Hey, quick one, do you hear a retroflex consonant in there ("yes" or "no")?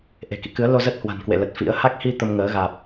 no